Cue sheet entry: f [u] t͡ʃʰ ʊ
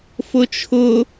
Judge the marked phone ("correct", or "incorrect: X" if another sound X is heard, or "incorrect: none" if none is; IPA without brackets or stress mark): incorrect: ʊ